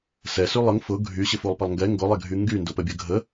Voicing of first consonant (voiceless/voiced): voiceless